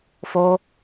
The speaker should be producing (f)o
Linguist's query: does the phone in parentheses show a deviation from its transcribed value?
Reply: no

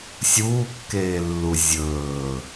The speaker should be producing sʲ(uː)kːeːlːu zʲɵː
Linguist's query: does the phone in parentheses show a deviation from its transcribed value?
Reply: no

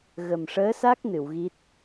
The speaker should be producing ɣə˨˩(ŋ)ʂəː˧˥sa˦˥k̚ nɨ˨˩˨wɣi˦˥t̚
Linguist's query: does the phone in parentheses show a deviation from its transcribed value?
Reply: yes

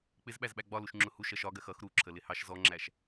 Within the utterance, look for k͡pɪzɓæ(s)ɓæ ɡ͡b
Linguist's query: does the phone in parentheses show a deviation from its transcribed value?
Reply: yes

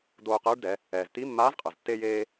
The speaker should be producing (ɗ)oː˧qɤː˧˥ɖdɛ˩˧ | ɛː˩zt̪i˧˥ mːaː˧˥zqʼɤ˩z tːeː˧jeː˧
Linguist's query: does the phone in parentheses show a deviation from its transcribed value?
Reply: yes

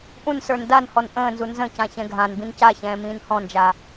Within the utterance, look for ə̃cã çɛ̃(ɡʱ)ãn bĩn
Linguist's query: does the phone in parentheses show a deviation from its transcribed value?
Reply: no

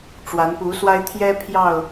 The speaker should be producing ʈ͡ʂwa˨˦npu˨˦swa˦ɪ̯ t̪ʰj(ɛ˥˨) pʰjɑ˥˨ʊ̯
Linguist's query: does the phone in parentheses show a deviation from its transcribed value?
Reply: yes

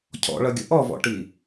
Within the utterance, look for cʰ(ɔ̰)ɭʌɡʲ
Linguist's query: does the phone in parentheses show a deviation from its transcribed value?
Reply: no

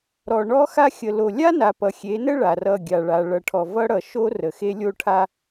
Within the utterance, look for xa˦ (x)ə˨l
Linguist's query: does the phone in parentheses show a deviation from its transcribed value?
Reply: yes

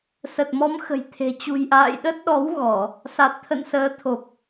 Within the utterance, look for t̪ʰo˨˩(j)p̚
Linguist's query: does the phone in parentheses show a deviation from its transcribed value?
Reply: yes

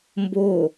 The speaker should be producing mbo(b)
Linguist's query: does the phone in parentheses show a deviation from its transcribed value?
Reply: yes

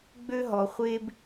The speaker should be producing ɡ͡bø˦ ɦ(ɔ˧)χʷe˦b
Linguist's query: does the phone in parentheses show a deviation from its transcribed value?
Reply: no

